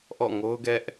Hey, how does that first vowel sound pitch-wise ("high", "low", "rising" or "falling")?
falling